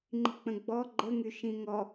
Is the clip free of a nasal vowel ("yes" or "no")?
no